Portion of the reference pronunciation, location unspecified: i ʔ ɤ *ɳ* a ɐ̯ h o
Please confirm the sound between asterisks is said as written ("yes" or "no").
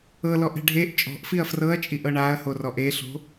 yes